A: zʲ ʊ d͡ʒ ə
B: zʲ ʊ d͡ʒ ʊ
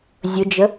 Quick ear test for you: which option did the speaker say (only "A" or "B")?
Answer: A